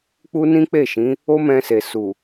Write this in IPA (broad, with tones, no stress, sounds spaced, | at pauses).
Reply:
k͡p u˦ n ĩ˦ k͡p e˦˨ ʃ ĩ˨˦ | o˦ m ɛ̃˧ s e˨ s u˨